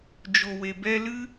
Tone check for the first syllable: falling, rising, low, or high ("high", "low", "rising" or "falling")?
low